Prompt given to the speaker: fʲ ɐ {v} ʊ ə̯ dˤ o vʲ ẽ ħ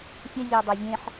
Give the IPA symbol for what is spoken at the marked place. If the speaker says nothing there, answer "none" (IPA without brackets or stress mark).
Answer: vʲ